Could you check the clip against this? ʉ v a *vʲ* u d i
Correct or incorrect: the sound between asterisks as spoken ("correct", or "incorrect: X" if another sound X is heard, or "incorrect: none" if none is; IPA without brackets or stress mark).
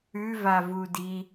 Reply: incorrect: v